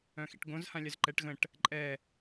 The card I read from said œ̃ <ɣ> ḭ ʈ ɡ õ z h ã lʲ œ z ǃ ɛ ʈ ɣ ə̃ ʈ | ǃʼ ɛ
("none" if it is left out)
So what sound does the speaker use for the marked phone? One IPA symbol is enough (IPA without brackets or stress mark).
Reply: x